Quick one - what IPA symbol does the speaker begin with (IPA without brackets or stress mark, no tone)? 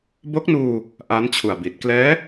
b